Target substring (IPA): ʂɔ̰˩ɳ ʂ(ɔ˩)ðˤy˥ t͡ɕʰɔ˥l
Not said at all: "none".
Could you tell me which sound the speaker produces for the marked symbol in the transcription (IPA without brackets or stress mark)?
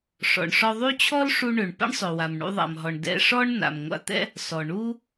ɔ˧